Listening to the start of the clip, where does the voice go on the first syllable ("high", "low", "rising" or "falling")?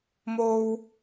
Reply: high